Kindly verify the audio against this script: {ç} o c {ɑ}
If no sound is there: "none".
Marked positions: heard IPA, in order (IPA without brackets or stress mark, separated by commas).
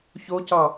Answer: ç, ɑ